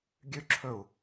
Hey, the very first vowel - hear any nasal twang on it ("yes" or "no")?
no